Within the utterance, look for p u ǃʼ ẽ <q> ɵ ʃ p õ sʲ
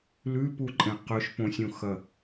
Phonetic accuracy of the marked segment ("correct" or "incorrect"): correct